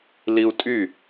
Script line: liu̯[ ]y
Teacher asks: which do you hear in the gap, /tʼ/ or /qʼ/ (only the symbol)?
tʼ